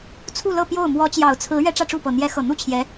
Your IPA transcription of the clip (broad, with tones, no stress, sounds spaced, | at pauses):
t͡sʰ u˥˧ l ɤ˥˧ p j o˥˩ ʊ̯ m w ɔ˧˥ t͡ɕ j ɑ˨˩ ʊ̯ t͡sʰ ɹ̩˧˥ ɥ ɛ˥ ʈ͡ʂ ä˥˧ ʈ͡ʂ u˥˩ p ɤ˨˩ n̪ j ɛ˧˥ x ɤ˨˩ n̪ u˥˩ t͡ɕʰ j ɛ˧˥